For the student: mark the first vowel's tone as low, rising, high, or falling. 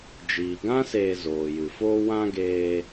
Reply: low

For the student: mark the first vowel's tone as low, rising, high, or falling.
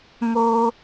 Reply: high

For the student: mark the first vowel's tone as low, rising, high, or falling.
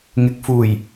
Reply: low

